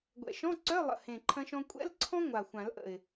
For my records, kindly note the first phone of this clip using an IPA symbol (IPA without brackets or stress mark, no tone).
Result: ɡʷ